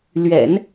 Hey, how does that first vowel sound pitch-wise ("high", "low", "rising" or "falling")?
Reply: low